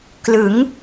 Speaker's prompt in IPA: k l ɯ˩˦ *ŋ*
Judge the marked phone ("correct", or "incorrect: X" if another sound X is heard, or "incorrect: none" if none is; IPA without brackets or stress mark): correct